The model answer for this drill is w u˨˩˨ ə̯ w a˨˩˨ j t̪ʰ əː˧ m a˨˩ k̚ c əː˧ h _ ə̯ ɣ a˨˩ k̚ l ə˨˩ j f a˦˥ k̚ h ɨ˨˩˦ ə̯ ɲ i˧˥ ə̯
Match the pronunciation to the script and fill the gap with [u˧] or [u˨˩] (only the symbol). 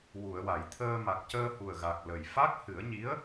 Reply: u˨˩